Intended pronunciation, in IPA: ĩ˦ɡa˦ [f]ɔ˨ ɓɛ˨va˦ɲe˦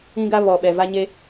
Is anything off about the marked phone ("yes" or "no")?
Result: yes